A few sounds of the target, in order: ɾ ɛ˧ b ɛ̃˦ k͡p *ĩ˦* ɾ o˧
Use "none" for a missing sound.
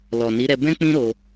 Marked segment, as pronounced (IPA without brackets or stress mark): ĩ˦